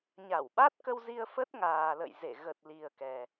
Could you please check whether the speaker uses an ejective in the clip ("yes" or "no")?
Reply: no